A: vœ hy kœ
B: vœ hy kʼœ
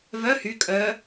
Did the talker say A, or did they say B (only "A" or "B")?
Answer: B